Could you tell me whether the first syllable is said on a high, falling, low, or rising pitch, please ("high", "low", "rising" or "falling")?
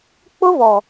high